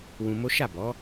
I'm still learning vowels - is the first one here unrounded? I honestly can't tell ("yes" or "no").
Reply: no